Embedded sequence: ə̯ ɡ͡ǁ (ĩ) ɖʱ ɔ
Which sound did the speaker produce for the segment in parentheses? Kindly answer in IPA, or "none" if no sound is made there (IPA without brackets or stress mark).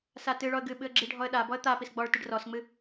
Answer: i